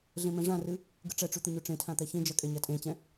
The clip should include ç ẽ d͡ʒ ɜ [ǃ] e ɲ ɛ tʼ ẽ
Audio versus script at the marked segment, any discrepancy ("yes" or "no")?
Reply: yes